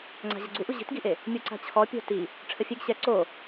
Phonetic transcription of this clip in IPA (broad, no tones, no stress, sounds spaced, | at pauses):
ŋ͡ǀ a̤ ʑ ə ɡ͡ǀ u ʔ u ʑ i̤ t ɡ i ʔ e | mʲ u ǀ a̤ t͡ɕʰ ɔ pʲ o̤ t i | ʈ͡ʂʰ ə fʲ e ɡ ɕ ɛ ǀ o